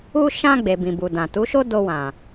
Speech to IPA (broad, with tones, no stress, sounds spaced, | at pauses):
u˧ ʃ ã˧ ɡ͡b e˨ b ĩ˨ b u˨ d ã˨ t u˨˦ ʃ o˦ d o˧ w ã˨